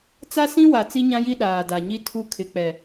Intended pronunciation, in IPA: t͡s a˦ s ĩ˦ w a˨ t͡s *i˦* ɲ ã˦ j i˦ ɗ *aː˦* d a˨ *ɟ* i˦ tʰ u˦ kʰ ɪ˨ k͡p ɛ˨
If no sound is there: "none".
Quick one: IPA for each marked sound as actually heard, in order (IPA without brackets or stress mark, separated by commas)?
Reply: i˦, aː˨, ɲ